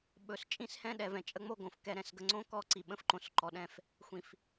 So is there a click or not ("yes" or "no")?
yes